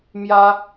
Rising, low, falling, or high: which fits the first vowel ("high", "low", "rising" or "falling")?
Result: high